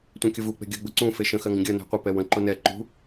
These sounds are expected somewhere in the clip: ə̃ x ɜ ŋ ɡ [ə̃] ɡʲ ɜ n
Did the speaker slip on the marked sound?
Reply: no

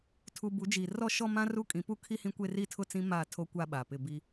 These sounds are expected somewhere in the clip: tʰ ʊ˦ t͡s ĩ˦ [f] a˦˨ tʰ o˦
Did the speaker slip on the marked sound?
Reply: yes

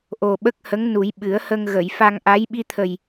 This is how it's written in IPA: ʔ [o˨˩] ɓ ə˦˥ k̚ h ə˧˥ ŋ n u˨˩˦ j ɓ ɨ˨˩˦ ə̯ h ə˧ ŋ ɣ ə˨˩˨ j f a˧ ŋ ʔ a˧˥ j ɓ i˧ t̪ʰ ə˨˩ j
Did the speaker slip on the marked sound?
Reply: no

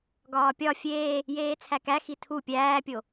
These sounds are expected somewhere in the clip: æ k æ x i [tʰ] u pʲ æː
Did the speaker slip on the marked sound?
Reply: no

